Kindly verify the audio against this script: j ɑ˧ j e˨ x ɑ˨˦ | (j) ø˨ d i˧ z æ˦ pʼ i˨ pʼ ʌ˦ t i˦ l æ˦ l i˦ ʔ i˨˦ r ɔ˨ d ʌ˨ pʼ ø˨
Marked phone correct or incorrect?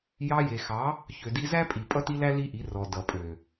incorrect